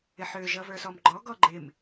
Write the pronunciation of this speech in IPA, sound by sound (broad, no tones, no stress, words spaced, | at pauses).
ɪħøʒʌ və˞sɔmɡ͡ǃɔ ɡɔɡ͡ǃɪm